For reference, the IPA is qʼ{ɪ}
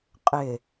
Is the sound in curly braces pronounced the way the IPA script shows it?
yes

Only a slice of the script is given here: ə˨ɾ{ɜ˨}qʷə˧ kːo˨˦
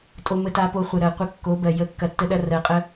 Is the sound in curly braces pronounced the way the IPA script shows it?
yes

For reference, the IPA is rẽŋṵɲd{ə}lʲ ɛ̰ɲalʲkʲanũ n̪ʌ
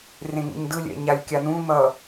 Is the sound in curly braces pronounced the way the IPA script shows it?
no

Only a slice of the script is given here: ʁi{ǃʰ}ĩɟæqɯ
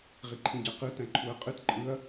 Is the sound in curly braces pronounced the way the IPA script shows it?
yes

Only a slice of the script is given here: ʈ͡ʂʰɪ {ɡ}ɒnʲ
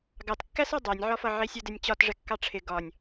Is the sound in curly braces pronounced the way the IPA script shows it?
yes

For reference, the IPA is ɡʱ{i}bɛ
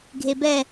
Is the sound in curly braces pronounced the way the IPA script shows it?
no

